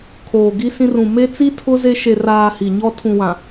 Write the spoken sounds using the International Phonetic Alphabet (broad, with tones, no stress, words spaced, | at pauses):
kʰoː˨ɡi˦sĩ˦r ũ˨me˦t͡si˦ tʰʊ˦ ze˦ ʃe˨raː˨ hi˨ɲɔ˦ tʰũ˨wã˨